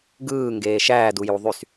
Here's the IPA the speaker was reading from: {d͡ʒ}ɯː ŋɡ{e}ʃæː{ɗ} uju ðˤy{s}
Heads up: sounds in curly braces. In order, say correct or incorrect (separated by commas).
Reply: incorrect, incorrect, incorrect, correct